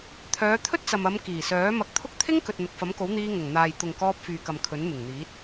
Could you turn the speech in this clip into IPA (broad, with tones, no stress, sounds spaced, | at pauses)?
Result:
t̪ʰ œː˨˧ t̪ʰ ɵ˥ t̚ t͡s ɐ˨ m ɐ˨˧ m k iː˨˩ s œː˨˥ m ɐ˧ k̚ t̪ʰ ʊ˥ k̚ t̪ʰ ɪ˥ ŋ k ɵ˨ t̚ n̪ ʊ˨ k̚ f ɐ˨˥ m k o˨˥ w n̪ iː˧ ŋ ʊ˨˩ ŋ n̪ aː˨ j t̪ ʊ˨ ŋ k ɔː˧ p̚ f yː˨ k ɐ˨ m kʰ ɵ˨˥ n m ɪ˨˩ ŋ n̪ iː˨˥ t̚